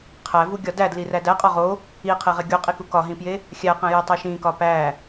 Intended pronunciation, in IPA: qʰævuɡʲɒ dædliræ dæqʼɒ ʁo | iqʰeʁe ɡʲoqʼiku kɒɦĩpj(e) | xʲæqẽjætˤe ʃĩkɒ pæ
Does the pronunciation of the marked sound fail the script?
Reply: no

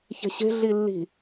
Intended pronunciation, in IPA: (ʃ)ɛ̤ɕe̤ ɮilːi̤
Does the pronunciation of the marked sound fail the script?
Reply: yes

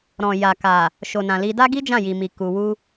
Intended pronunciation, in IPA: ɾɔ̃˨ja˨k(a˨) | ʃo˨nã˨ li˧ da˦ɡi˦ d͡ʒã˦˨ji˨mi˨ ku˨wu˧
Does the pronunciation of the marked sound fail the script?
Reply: no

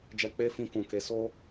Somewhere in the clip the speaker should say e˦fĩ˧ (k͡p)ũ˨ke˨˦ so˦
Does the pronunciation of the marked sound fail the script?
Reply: yes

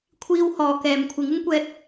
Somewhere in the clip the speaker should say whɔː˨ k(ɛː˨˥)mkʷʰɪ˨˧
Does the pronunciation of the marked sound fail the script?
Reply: yes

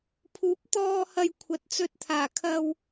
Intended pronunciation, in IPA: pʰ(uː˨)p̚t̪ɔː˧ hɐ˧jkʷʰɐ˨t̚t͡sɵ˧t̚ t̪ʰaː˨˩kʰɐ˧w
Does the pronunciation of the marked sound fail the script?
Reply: yes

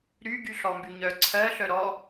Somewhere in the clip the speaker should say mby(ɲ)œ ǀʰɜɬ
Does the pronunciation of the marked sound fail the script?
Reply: no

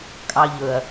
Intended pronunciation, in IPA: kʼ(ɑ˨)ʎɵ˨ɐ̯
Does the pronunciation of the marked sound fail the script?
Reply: no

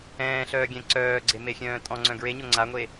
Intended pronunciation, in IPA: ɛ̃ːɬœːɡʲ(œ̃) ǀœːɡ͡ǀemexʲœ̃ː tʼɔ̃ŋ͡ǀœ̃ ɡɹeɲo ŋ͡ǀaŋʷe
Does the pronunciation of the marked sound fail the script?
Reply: yes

